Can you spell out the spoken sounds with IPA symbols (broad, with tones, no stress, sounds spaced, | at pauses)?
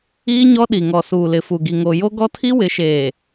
iː˦ ɲ ɔ˦ ɗ i˨ ŋ ɔ˨ s uː˨ l ɪ˨ f u˨ ɡ i˨ ŋ o˨ j o˦ ɡ ɔ˦ tʰ i˦ w ɪ˨˦ ʃ eː˨